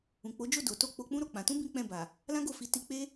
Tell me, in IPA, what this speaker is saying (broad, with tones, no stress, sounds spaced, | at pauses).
ũ˨ k͡p o˨˦ d͡ʒ o˦˨ d o˨˦ t o˦˨ k͡p o˧ k͡p ũ˦ ɾ o˧ k͡p ã˧ t ũ˦ b ĩ˦ k͡p ɛ̃˦˨ b a˨ | l ã˦ ɡ o˦˨ f i˨˦ t i˧ k͡p e˦